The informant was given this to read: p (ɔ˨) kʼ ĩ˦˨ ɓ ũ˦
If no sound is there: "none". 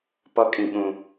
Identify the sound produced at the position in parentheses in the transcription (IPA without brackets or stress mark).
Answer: ɔ˦